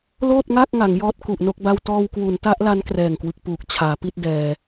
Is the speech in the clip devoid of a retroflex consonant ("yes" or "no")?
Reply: yes